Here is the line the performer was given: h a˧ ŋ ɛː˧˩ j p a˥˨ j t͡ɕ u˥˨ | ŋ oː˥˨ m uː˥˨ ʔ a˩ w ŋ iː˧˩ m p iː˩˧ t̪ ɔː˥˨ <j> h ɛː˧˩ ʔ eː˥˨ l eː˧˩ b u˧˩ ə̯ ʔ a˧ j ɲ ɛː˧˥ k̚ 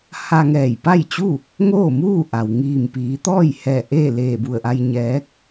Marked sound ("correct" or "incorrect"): correct